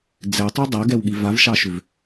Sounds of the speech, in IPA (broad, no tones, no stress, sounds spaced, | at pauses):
d͡z ɛ tˤ ʉ dˤ a ɡ ɛ w ɠ i v a v ʃ ɑ ʃ ʏ v